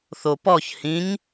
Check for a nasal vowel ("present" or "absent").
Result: present